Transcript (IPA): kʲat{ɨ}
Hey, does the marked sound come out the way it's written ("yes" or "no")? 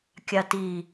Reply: no